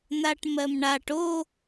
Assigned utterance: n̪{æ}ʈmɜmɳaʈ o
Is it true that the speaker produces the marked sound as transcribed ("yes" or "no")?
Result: no